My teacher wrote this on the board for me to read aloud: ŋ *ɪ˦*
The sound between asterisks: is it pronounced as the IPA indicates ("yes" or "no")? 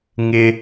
yes